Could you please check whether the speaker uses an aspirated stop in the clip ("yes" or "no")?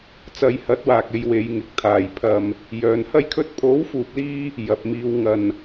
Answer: yes